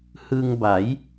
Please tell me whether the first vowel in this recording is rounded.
no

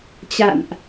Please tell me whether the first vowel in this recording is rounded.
no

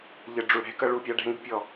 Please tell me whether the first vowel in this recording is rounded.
no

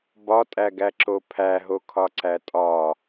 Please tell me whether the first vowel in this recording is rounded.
yes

